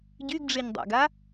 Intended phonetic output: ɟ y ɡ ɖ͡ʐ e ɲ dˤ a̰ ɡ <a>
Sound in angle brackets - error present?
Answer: no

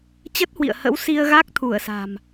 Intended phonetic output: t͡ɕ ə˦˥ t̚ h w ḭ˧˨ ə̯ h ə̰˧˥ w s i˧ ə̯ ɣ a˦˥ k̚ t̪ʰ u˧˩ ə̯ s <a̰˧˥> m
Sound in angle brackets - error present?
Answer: yes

